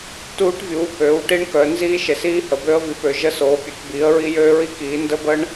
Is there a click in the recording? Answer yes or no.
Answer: no